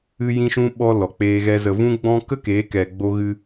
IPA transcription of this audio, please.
ɨ˧ j ĩ˧ ʃ ũ˧ ɓ ɔ˧ l ɔ˨ k͡p eː˧ ɣ ɛ˧ z ə˨ v ũ˧ ɡ͡b ɔ̃˧ k ə˦ k eː˨˦ k ɛ˨ ɡ͡b o˧ ɣ ɨ˧

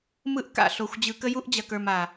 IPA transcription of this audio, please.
m ɯ˦ ʔ k a̰˨ ɬ o˨ xʷ d͡ʑ ɯ˨ k ə˦ j u˦ ʔ d͡ʑ ɐ˨ k ə˞˨ m a˨

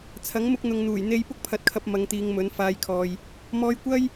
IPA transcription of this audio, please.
t͡sʰ ɐ˨˥ ŋ m ʊ˧ k̚ n̪ ʊ˨ ŋ n̪ uː˨˩ j n̪ e˧ j p ʊ˥ k̚ pʰ ɐ˨˥ t̚ kʰ ɐ˧ p̚ m ɐ˨˧ ŋ t̪ iː˨˧ ŋ m ɵ˨˥ n f aː˧ j kʰ ɔː˨ j | m ɔː˧ j kʷ ɐ˥ j

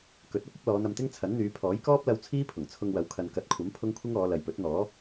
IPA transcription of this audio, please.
k ɵ˨˥ t̚ ɐ˥ p̚ ɐ˥ p̚ l ɔː˨˧ n̪ ɐ˧ m t̪ ɪ˥ ŋ t͡sʰ ɐ˨˥ n n̪ yː˨˧ pʰ ɔː˨˥ j k ɔː˥ p̚ l ɐ˧ w t͡sʰ iː˥ pʰ ʊ˨˩ ŋ t͡sʰ ʊ˧ ŋ w ɐ˨˥ w kʰ ɐ˨ n k ɐ˨˥ t̚ kʷʰ ɐ˨˥ m pʰ ʊ˥ ŋ kʷʰ ɪ˥ ŋ ɔː˨˧ l ɐ˨ j p ɵ˨˥ t̚ n̪ ɔː˨˥

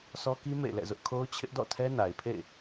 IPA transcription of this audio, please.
sʰ ɔ˦ k i˦ m ḛ˦˨ ɪ̯ l ɛ̰˦˨ z ʊ˦ ʔ kʰ o˦ ʊ̯ t͡ɕʰ ɪ˦ ʔ d ɔ̰˦˨ tʰ ɛ˦ n a˨ ɪ̯ pʰ ḛ˦˨ ɪ̯

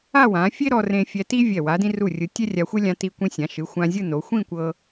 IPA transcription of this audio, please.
a˥˧ w ã˩˧ fʲ e˥ ɾ ɔ˧ r ẽ˧ fʲ ɛ˧ t i˥ vʲ ɛ˧˩ w a˩˧ d ĩ˧ r u˧˩ rʲ ɯ˩˧ tʲ ɛ˥ rʲ a˧ xʷ e˥ lʲ ã˧ t i˧ kʷ ĩ˧ sʲ ã˩˧ ʃ ɯ˩˧ xʷ ã˧ zʲ ɯ˥˧ n o˩˧ xʷ ĩ˥˧ kʷ ɤ˧

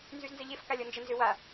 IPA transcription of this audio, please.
n z y z n z ə ʎ e f k a lʲ ɔ n d͡ʒ ə n z ʏ w a

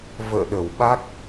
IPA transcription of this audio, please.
v ə̰ː˧˨ ɗ ə˧˩ w ɓ a˦˥ k̚

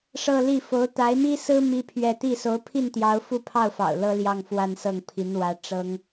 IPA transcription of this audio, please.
ʂ ɤ˥˧ l i˥˩ f o˧˥ ʊ̯ t̪ a˧˥ ɪ̯ m i˥ s ɹ̩˥ m i˥ pʰ ɥ ɛ˥˧ t̪ i˥˩ s o˧˥ ʊ̯ pʰ i˥˩ n t̪ j ɑ˧˥ ʊ̯ f u˥˧ pʰ ɑ˥˩ ʊ̯ f ɑ̰˨˩ ʊ̯ l ɤ˥ l j ɑ˥˧ ŋ f w a˥˧ n s ɤ˥˩ ŋ pʰ i˧˥ n w ä˧˥ ʈ͡ʂ ɤ˥ ŋ

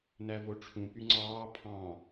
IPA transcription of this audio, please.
n æ v o ʈ͡ʂʰ ũ p y ŋ͡ǀ ɑː pʰ ɑ̃

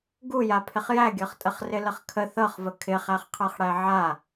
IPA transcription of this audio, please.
ɡ u j a pʰ ɪ χ j æ ɡʲ ɤ χ tʼ ə χ r ɪ l ə χ kʰ ə θ ɤ χ v ə kʰ ɪ χ æ χ qʰ ɤ χ ɽ æ ʕ a

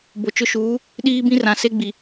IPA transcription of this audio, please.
b o˨ t͡ʃ ʊ˦ ʃ uː˨˦ | ɗ iː˦ b ĩ˦ r ã˨ s e˦ ɡ͡b i˨

